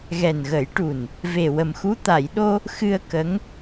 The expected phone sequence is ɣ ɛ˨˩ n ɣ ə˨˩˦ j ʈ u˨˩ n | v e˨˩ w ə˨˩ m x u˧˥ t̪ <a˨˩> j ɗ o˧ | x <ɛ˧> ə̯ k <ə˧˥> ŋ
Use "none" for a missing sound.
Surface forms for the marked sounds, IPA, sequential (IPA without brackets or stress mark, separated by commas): a˨˩˨, ɨ˧, ə˧˥